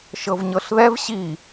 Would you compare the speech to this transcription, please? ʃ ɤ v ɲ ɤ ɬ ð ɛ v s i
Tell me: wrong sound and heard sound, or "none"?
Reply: s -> ɕ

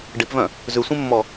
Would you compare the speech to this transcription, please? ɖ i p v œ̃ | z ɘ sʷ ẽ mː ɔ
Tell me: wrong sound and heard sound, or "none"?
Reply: ɘ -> ʉ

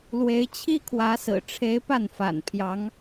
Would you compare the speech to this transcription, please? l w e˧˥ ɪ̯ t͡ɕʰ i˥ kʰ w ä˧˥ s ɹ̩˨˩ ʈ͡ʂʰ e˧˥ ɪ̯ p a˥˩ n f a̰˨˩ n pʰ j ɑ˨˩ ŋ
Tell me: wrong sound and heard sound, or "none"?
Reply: ɑ˨˩ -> ɑ˧˥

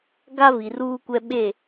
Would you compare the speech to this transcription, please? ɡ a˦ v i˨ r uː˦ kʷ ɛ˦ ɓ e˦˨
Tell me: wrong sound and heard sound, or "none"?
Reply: none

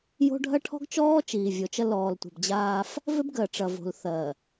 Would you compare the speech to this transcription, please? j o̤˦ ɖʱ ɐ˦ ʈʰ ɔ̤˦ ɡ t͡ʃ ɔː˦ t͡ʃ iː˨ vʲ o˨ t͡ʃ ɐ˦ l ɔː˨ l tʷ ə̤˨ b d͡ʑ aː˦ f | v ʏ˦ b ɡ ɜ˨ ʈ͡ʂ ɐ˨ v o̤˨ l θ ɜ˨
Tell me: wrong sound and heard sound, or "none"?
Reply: none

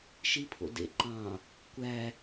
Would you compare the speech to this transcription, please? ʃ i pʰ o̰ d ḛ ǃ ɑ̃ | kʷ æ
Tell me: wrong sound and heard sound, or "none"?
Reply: none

